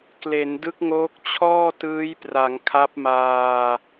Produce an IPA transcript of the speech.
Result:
kle˩˦ndɯ˦˥k̚ŋoː˦˥k̚ t͡ɕʰɔː˥˩tɯː˦˥jpra˩˦ŋ kʰa˦˥p̚ maː˧

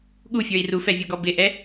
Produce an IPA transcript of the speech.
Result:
ɠufʲə˞i̯ rufɛvʲuɡɔ bɪʔɛ

